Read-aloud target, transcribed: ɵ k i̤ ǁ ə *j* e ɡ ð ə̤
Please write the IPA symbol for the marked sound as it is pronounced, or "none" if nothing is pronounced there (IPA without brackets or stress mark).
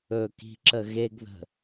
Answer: ɣ